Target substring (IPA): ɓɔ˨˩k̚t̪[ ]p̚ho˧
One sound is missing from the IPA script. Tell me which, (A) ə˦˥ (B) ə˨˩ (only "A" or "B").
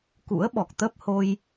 A